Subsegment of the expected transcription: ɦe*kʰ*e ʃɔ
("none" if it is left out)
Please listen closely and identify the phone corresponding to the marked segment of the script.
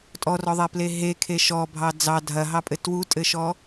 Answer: kʰ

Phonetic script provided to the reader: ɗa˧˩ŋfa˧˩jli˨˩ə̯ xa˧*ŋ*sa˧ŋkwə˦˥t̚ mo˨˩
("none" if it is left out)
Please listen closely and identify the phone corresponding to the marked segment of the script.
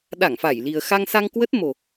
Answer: ŋ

